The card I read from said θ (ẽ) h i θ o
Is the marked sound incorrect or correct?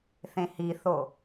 correct